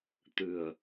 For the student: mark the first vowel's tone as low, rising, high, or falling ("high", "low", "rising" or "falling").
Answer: low